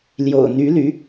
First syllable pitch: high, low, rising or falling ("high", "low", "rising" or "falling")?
low